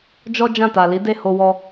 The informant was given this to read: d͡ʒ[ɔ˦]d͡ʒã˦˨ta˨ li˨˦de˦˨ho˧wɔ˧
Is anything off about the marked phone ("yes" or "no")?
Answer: no